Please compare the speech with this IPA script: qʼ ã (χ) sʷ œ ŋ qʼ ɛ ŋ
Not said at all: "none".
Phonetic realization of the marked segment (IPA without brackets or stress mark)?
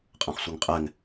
χ